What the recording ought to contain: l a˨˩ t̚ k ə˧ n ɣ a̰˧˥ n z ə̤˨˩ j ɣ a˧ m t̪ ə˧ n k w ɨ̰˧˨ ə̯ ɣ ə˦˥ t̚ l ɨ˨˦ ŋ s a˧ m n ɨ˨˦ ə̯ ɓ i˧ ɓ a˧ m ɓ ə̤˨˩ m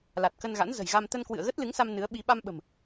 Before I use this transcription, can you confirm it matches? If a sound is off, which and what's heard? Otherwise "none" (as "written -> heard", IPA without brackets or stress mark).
none